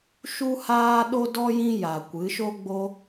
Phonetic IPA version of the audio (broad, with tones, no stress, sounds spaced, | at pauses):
ʃ u˧ h aː˧ ɗ o˦ d ɔ˦ j ĩ˦ j a˨ kʷ ɨ˨˦ ʃ o˦ ɡ͡b o˦